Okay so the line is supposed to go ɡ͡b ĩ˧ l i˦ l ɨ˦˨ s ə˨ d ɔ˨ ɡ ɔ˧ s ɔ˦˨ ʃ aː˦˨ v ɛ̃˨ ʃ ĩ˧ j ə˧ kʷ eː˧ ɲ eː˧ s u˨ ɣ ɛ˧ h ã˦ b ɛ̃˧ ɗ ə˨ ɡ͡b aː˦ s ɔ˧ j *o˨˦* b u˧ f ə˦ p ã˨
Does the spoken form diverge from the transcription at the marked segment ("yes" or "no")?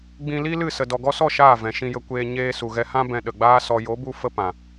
no